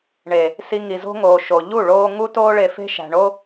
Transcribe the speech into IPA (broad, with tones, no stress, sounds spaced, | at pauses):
ɳ e˨ | s i˧ ŋ i˨ z o̤˦ ŋ oː˨ ʃ o˨ ʎ u˦˨ ɭ oː˦ ŋ u˦ t oː˦ ɭ e˧ f e̤˦ ʃ æ̤˨ ɳ o˦